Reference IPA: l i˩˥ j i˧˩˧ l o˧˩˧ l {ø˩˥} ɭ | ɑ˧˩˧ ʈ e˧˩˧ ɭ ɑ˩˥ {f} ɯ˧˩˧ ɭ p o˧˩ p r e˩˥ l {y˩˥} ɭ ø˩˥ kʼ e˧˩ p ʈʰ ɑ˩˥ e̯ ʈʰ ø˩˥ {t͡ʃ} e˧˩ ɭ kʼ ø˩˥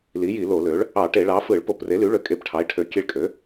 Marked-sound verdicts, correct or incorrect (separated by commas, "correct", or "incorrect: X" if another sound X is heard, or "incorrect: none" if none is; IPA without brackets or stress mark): correct, correct, correct, incorrect: kʲ